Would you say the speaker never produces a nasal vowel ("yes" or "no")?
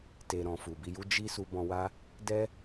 no